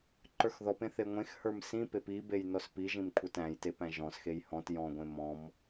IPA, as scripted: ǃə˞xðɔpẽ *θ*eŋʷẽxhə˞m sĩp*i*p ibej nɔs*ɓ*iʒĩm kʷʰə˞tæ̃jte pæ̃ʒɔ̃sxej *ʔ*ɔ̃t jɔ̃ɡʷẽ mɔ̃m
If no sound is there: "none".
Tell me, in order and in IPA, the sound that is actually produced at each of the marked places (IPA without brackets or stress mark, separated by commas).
θ, e, p, h